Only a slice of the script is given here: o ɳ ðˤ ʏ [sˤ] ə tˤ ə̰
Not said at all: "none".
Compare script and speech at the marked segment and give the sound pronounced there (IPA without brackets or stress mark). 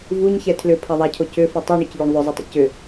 zˤ